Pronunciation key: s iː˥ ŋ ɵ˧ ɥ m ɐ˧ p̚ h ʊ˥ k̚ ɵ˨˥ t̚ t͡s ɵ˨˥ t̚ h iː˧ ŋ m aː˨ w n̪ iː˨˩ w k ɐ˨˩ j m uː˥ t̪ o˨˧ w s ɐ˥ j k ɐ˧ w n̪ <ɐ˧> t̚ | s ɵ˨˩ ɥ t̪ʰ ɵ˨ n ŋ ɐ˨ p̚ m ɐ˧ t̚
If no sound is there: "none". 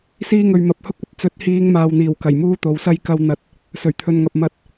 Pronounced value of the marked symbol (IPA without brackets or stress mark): ɐ˨˥